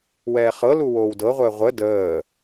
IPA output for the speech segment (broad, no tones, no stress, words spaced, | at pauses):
wɛːχɤlu woːwdɤʁʷəː ʁʷə dəː